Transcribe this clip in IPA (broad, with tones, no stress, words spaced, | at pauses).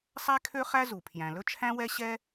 sˤæ˥kʰø˥ χæ˥ zu˩pʰjæ̃˩ lɵ˥ t͡ʃʰæ̃˥wɛ˥ ɕɛ˥